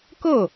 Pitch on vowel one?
falling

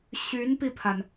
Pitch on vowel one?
rising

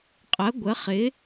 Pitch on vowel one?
rising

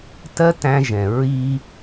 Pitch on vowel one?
high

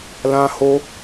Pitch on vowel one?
high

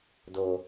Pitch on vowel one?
low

